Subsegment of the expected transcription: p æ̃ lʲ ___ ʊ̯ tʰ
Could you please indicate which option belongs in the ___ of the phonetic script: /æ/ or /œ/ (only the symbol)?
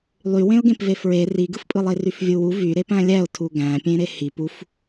æ